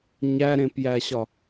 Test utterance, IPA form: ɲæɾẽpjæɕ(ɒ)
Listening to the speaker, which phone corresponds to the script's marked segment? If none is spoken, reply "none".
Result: ɒ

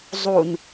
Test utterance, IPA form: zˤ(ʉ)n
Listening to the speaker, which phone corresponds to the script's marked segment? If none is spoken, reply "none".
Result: u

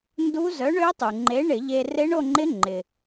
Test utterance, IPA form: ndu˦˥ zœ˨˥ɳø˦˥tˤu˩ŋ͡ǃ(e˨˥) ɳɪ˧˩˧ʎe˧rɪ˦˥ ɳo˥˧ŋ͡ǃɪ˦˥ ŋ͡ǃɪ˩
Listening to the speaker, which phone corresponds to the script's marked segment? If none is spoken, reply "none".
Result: e˨˥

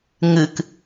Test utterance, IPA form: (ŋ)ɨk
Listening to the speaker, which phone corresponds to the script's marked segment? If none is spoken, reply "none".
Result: ŋ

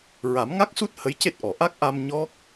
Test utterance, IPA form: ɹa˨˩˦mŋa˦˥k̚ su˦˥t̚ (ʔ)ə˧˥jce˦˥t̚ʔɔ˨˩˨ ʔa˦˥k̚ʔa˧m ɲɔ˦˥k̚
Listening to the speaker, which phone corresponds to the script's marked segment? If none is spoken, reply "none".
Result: h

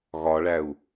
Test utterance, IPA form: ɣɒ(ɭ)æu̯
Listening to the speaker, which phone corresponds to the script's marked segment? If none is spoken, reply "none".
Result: ɭ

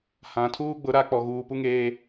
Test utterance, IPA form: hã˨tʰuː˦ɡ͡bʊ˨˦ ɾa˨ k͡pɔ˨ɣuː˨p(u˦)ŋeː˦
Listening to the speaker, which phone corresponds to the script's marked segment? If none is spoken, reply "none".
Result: u˦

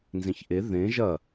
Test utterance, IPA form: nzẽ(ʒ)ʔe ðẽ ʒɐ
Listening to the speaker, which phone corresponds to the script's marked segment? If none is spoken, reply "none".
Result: ç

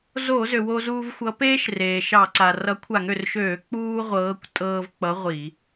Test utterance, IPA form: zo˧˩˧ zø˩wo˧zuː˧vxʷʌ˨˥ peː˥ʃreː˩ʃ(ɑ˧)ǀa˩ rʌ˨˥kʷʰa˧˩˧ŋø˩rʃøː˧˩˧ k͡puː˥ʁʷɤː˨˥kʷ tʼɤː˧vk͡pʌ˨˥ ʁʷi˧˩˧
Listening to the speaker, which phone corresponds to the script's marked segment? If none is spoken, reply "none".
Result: ɑ˧˩˧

